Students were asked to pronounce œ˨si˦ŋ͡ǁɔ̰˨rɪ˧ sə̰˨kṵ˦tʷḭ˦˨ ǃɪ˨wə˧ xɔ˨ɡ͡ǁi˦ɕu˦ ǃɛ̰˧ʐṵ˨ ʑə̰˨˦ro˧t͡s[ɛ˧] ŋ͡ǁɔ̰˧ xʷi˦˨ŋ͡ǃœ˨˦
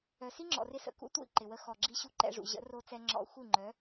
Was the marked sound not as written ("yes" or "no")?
no